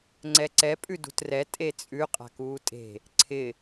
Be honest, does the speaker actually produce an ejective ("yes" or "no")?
yes